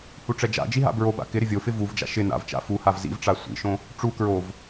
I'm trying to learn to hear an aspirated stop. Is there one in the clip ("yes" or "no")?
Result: no